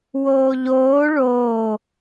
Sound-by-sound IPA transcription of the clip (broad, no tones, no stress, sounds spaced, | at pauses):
w oː ʎ oː ɭ oː